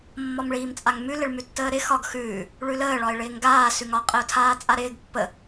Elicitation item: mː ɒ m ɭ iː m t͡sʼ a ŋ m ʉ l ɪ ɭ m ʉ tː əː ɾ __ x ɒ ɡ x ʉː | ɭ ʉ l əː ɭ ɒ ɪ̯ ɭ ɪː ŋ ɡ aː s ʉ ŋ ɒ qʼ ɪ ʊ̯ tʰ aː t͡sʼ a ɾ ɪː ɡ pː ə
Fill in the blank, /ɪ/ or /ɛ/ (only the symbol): ɪ